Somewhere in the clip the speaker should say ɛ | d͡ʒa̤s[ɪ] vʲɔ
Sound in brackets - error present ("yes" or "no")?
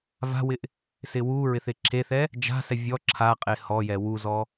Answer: yes